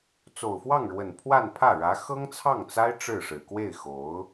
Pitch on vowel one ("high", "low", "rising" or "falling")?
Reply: low